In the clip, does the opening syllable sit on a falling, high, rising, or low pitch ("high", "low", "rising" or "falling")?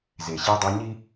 low